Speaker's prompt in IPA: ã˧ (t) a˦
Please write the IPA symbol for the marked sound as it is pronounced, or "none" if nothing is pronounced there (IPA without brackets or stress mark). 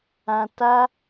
t